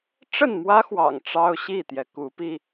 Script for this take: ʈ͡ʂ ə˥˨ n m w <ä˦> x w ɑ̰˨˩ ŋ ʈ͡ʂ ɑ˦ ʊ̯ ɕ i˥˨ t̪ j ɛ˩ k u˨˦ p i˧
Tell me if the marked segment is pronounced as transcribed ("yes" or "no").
yes